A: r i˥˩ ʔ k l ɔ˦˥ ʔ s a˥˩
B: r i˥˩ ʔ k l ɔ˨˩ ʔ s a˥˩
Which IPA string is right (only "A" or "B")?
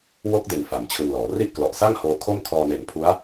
B